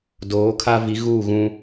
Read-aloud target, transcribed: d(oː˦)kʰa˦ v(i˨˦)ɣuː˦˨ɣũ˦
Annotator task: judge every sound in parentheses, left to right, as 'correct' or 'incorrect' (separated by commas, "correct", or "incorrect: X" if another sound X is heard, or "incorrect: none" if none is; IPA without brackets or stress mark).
incorrect: oː˨˦, correct